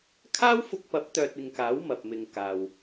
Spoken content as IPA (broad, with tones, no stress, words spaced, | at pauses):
kʰaː˥wfʊ˧k̚pɐ˨˥p̚ t̪œː˧t̚ɪ˧ŋkaː˨˥w mɐ˨p̚mɪ˨ŋ kaː˨w